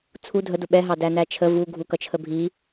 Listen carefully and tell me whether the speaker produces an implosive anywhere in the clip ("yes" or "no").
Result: yes